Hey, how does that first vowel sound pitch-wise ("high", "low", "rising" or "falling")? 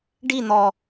falling